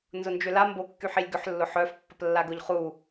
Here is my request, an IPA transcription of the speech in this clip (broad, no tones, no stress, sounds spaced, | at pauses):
n z ʊ n d͡ʒ ʏ l a m b o kː y ħ i lʲ ɡ ʏ ħ lː ʊ ħ œ f pː ɐ p lː a ɡ ʊ ʎ χ u